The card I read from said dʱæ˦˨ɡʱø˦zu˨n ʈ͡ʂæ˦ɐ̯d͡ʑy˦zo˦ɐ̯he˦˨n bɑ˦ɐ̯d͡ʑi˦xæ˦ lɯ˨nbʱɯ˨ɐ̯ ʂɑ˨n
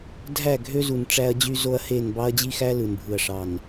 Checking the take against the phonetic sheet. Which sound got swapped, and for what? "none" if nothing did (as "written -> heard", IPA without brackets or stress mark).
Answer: none